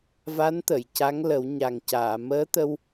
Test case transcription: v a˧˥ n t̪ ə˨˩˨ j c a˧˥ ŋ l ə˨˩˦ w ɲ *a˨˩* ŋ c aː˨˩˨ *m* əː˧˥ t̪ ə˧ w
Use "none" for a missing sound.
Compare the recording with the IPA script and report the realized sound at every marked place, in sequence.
a˨˩, m

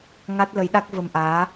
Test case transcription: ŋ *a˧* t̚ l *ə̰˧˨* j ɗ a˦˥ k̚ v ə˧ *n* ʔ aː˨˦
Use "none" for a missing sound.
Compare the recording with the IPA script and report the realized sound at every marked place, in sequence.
a˦˥, ə˨˦, m

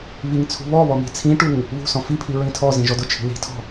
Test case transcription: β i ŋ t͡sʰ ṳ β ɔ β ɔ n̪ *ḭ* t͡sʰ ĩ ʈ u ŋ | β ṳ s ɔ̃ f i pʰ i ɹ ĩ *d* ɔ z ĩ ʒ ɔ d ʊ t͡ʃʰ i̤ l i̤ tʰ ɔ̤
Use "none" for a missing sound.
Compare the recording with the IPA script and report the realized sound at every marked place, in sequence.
i̤, tʰ

